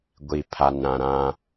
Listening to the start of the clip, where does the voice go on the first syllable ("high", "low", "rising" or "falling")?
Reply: low